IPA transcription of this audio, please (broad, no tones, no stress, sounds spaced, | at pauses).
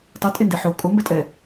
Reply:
tˤ o tʼ e n d e ħ o kʼ o m b ɛ tʼ ɛ